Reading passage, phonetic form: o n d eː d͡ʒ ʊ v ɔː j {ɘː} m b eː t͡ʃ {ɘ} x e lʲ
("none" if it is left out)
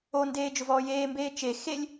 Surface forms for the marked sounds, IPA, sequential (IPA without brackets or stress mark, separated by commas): eː, e